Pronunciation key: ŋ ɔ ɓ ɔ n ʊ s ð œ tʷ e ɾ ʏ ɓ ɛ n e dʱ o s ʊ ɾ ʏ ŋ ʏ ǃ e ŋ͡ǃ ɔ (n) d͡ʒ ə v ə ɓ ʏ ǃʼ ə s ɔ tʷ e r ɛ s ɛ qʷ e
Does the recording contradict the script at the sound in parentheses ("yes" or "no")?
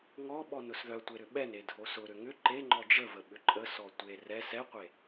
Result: yes